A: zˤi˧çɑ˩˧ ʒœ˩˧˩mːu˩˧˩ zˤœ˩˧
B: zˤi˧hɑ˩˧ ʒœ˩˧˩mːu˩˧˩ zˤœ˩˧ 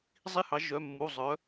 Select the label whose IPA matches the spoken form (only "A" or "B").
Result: B